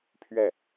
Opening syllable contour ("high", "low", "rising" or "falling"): falling